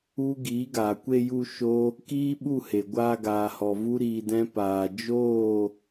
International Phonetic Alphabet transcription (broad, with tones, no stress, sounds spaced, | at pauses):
u˦ ɡ iː˨˦ ɡ aː˨ kʷ e˧ j u˧ ʃ o˦ | k iː˦ ɓ u˦˨ h e˨ ɡʷ aː˧ ɡ aː˨ h ɔ˨ v u˦ ɾ iː˧ d ɛ̃˦ p aː˧ d͡ʒ oː˦˨